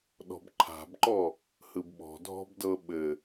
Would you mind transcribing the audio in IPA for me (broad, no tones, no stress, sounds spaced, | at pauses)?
ɗ ɔ̤ b ǃʰ a̤ b ǃ ɔ | h ɯ b ɓ ɔ̤ dʱ ɔ̤ b d ɤ ɓ ɘ